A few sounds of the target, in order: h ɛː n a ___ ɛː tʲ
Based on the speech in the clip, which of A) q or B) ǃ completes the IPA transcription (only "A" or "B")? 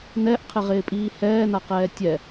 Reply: A